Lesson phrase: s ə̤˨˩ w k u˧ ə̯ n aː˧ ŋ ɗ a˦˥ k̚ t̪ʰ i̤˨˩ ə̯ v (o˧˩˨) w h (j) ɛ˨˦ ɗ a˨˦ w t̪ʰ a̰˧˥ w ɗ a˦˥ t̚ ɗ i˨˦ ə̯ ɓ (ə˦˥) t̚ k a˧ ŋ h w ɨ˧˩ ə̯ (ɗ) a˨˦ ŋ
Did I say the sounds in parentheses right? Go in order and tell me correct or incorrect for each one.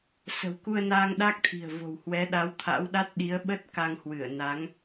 incorrect, incorrect, correct, incorrect

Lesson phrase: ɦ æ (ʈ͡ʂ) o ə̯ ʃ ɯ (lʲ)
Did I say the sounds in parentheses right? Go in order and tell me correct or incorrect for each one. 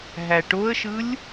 incorrect, correct

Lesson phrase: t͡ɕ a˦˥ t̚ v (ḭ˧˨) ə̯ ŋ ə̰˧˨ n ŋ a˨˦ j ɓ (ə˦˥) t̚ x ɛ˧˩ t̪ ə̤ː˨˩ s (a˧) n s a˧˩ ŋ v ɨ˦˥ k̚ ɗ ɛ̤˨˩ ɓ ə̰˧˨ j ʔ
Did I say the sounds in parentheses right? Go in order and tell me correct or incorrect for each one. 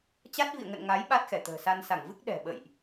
correct, incorrect, correct

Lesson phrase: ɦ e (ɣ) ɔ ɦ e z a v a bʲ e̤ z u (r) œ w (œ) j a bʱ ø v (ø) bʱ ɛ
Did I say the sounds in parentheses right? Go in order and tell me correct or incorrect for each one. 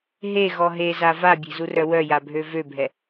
correct, correct, correct, correct

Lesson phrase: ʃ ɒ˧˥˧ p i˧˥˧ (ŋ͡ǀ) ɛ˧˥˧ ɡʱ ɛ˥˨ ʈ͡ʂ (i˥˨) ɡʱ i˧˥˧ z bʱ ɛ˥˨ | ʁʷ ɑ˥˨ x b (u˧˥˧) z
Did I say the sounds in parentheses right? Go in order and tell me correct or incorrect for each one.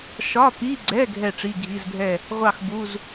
incorrect, incorrect, correct

